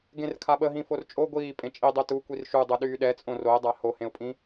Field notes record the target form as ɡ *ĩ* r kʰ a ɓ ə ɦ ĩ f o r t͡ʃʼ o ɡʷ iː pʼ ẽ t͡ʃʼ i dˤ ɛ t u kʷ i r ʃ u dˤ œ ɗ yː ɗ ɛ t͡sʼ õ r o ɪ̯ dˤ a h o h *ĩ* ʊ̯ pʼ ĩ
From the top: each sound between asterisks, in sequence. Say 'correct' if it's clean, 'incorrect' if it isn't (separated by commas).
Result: incorrect, incorrect